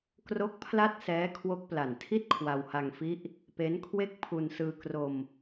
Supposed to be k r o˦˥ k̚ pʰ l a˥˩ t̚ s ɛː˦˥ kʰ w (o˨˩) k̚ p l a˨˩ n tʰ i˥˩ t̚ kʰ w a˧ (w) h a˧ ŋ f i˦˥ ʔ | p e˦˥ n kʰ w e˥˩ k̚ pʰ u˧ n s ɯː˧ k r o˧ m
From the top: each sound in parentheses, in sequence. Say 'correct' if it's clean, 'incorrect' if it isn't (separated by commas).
incorrect, correct